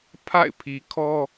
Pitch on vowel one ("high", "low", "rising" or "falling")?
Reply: falling